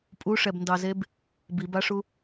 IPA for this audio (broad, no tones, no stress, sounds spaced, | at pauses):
pʼ u ʂ ɛ b n d ɑ z e b | b i b a ʂ u